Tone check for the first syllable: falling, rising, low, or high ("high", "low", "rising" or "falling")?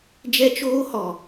high